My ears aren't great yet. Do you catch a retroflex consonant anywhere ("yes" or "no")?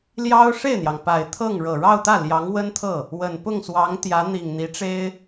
yes